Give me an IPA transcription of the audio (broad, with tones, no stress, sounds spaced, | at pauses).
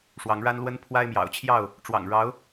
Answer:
ʂ w ɑ˨˦ ŋ ɻ a˦ n l w ə˦ n pʰ w a˦ ɪ̯ m j ɑ̰˨˩ ʊ̯ t͡ɕʰ j ɑ˥˨ ʊ̯ | ʈ͡ʂ w ɑ̰˨˩ ŋ ɻ ɑ˨˦ ʊ̯